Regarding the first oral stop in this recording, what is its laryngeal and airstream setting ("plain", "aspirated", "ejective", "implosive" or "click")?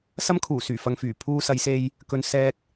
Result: aspirated